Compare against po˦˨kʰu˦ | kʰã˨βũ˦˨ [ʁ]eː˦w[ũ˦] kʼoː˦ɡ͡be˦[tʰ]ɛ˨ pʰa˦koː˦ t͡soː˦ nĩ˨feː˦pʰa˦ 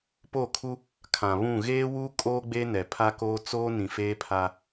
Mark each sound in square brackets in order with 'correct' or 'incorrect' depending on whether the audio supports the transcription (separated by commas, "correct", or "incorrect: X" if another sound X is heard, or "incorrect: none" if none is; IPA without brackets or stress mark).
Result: incorrect: ɣ, incorrect: u˦, incorrect: n